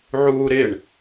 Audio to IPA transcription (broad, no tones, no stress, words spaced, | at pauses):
ʕuːɾɪɳ